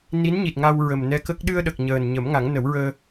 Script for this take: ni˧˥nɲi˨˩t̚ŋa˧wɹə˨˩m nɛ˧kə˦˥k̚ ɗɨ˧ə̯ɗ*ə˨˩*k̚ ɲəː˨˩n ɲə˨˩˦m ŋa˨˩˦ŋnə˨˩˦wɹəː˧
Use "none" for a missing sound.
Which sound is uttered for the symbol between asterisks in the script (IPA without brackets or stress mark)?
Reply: ə˨˩